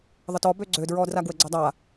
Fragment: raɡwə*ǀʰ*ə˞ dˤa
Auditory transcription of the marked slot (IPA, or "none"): ɡ͡ǀ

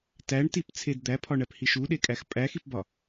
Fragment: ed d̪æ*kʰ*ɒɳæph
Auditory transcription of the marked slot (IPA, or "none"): pʰ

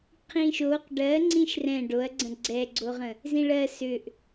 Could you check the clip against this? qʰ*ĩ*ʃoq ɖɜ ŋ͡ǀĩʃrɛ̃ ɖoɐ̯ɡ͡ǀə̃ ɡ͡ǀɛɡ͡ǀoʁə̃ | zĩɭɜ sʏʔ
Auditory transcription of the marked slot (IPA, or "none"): ĩ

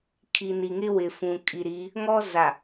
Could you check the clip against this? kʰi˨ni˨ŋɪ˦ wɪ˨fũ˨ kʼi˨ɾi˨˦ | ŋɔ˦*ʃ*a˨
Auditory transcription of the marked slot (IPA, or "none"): z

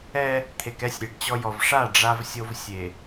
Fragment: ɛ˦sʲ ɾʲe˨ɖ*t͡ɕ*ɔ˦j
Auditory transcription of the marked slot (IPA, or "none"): t͡ɕ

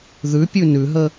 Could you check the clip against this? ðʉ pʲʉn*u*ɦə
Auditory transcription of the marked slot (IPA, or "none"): ʉ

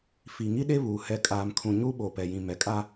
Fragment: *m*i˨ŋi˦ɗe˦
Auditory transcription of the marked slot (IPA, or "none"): f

